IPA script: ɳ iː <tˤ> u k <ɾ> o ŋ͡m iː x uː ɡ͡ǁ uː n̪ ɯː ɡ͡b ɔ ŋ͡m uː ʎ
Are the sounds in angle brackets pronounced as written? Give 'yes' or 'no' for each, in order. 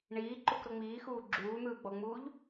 no, yes

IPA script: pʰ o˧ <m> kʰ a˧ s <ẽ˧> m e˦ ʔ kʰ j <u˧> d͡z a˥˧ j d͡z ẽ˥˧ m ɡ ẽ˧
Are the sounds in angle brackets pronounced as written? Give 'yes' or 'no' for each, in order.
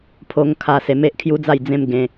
no, no, no

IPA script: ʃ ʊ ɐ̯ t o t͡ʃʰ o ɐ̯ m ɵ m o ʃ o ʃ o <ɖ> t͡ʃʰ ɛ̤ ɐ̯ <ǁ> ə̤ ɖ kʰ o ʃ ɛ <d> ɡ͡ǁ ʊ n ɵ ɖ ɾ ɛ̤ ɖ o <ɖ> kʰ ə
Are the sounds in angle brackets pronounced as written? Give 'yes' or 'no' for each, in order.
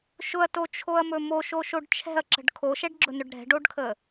yes, yes, no, yes

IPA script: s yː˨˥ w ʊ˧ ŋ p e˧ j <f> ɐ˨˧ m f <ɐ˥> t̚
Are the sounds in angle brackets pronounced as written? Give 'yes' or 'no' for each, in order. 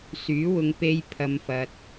no, no

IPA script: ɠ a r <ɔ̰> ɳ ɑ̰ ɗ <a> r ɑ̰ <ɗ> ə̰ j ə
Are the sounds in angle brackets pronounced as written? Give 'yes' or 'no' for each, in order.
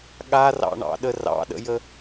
no, no, yes

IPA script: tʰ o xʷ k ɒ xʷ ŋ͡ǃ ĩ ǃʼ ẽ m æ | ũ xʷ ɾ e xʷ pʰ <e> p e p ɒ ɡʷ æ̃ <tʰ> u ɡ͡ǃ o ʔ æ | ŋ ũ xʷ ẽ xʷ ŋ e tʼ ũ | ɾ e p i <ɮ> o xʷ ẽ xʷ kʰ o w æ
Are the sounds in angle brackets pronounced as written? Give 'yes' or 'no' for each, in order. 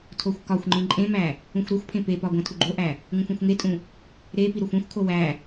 no, yes, no

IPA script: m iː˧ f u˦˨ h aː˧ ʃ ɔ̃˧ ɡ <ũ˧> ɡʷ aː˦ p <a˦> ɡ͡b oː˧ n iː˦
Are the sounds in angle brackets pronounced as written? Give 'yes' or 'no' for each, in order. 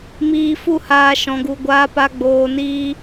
no, yes

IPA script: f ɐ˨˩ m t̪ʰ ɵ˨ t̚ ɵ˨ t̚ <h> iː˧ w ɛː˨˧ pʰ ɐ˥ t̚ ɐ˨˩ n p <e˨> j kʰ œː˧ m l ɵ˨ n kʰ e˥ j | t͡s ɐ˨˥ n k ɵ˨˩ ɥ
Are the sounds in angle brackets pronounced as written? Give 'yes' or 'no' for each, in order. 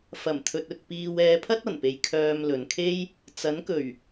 no, yes

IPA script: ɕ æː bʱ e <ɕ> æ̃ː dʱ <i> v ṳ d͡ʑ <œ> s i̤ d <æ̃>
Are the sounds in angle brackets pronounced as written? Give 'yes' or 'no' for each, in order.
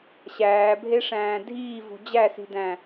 no, no, no, yes

